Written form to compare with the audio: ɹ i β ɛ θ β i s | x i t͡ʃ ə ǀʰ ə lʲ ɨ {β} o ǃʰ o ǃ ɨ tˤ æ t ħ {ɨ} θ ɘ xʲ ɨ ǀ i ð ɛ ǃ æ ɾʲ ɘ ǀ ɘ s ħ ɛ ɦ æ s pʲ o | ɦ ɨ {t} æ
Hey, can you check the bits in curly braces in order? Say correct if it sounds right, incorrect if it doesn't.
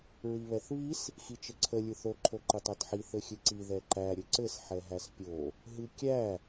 incorrect, incorrect, incorrect

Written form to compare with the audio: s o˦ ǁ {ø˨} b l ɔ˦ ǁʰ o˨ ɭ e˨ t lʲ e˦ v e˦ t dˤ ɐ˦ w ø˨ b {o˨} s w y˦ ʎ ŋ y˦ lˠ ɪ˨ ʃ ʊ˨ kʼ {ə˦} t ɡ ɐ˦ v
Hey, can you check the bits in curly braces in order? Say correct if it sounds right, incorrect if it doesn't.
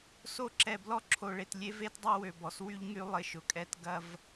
incorrect, incorrect, incorrect

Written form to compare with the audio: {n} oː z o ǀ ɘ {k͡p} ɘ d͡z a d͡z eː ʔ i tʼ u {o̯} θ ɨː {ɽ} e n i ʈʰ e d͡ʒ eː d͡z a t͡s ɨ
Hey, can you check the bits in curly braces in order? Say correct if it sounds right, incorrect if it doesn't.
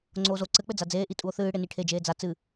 incorrect, correct, correct, correct

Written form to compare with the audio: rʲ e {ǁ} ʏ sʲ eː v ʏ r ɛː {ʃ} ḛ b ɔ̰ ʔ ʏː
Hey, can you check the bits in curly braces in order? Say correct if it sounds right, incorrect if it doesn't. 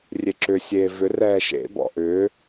correct, correct

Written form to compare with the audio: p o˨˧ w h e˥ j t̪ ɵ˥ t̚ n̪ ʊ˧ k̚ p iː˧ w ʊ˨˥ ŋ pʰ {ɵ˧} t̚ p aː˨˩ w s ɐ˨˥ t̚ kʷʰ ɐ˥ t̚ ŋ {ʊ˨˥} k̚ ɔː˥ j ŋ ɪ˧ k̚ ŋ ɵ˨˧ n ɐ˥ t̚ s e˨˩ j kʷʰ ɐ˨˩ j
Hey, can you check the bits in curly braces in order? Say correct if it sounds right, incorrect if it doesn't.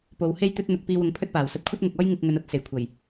incorrect, incorrect

